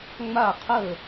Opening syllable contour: falling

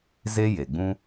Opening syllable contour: high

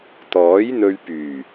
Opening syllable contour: rising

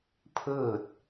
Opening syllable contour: falling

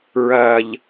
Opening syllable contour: low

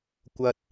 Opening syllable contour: low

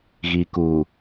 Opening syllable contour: low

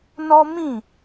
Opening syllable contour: high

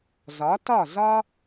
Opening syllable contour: rising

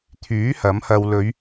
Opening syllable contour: rising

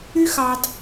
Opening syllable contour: high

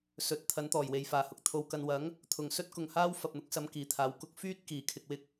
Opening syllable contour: rising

